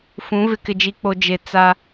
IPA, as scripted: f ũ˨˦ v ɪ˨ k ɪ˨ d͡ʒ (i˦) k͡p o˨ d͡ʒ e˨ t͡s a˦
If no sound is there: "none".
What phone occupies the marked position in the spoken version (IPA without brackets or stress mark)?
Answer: i˨